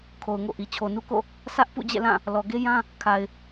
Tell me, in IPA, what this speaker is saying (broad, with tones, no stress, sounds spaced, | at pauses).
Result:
kʰ o˨ ʊ̯ ŋ o̰˦˨ ʔ i˨ t͡ɕʰ o˨ n u˦ k o̰˦˨ | sʰ ä˦ ʔ p ṵ˦˨ d͡ʑ ɛ̰˦˨ l ã˦˨ | l ɔ˨ ɡ e˦ j ã˦ | kʰ a˨ ɪ̯